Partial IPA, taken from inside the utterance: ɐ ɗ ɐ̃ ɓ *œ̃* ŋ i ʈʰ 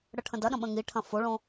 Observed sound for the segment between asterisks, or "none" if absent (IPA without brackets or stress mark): ə̃